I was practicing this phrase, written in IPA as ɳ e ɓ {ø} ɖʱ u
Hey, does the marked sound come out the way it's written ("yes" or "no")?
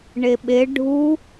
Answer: no